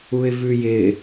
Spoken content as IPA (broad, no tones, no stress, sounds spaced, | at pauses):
u ɪ̯ v ʉ j ɪ